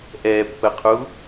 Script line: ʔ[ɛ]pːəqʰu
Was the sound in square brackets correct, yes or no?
yes